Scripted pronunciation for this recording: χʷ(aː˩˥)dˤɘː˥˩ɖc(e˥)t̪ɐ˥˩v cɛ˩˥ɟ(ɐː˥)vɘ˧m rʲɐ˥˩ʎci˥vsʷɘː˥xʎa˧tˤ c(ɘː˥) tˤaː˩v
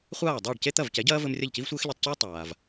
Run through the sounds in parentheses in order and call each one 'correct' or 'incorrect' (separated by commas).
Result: incorrect, correct, correct, correct